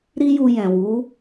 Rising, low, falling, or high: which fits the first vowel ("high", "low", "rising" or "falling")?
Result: high